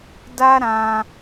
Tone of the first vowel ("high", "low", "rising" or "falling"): high